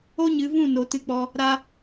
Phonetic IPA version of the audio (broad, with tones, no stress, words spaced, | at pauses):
o˦ɲɨ˨˦vũ˦˨no˨ tɨ˧k͡pɔ˧ | ɾa˧